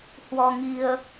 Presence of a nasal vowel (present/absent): absent